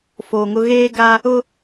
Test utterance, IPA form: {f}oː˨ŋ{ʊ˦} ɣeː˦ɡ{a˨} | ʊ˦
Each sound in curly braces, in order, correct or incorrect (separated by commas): correct, correct, incorrect